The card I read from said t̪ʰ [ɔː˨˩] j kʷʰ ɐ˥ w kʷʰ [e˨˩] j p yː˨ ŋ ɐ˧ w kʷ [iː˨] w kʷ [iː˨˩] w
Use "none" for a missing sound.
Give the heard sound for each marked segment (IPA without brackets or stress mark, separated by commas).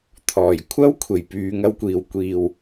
ɔː˨˩, e˨˩, iː˨˩, iː˨˩